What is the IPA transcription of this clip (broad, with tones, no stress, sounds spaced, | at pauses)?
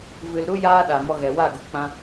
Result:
v ɨ˨ l ɾ u˦ j aː˦ ɗ a˨ m ɔ˧ ɣ ɛ˨ w a˦˨ ɡ u˨ k͡p ã˧